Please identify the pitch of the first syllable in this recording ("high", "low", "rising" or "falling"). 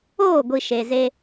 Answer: falling